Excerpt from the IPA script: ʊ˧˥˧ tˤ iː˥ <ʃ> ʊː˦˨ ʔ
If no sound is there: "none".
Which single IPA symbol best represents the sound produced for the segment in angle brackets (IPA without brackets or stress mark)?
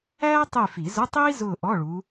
z